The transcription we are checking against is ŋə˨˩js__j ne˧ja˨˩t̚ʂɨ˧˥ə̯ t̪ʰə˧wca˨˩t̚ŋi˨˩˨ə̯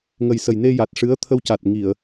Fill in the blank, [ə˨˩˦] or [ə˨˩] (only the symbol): ə˨˩